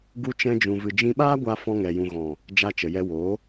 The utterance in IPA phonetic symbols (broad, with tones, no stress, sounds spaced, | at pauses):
ɡ u˦ t͡ʃ ɛ̃˦ d͡ʒ ũ˧ v ɨ˧ d͡ʒ ĩ˧ ɓ aː˦ ɡʷ a˧ f ɔ̃˧ ŋ ɛ˨ j ũ˨ ɣ ɔ̃˨ | d͡ʒ a˧ t͡ʃ ə˨ j ɛ˧ w oː˨˦